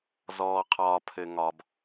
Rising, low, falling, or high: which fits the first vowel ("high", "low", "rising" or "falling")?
low